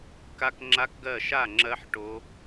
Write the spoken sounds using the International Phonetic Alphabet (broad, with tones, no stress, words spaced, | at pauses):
ka˦˥kŋ͡ǁa˦˥kɡɜ˥˨ ʃa˥˨ ŋ͡ǁɜ˦˥ħ ʈo˦˥